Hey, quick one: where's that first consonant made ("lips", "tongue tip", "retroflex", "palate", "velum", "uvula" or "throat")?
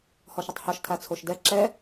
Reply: throat